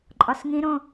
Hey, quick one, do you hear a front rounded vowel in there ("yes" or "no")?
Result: no